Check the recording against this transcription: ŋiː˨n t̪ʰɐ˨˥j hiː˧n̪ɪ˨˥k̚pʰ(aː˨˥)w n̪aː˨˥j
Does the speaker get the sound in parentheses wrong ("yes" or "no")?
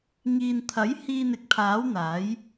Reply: no